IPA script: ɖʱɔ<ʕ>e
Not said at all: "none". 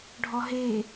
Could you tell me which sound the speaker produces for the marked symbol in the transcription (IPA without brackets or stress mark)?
ɦ